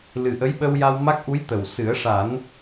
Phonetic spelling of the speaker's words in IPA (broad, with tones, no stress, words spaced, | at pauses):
lɨ˨˩ʔə˧˥jɓə˧w ja˧w ma˦˥k̚ʔu˧˥j t̪ə˨˩w sɨ˨˩˦ə̯ʂa˨˩˦n